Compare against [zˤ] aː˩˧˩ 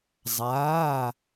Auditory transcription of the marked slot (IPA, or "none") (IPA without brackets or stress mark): zˤ